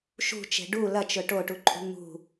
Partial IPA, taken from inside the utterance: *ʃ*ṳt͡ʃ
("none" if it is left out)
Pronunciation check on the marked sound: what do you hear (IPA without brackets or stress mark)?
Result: ʃ